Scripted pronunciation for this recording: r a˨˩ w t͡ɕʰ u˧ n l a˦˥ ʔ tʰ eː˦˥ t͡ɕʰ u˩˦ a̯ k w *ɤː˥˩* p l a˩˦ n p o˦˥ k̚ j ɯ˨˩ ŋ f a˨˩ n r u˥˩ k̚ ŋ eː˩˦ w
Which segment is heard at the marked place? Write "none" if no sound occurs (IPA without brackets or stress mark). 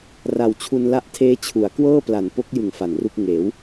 ɤː˥˩